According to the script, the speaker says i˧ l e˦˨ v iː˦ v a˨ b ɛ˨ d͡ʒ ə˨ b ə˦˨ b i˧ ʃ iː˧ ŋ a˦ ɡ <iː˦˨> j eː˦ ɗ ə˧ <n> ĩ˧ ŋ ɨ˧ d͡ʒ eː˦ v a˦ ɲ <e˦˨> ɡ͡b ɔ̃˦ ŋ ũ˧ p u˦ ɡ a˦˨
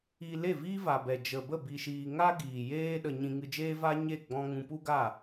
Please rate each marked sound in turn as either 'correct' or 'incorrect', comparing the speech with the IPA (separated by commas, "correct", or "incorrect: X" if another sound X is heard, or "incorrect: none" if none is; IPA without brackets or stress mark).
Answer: incorrect: iː˨, incorrect: ɲ, correct